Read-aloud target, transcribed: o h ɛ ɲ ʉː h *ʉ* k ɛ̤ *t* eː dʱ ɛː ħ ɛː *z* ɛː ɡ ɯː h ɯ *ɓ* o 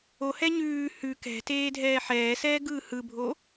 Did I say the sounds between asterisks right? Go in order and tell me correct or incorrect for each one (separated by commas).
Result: correct, correct, incorrect, incorrect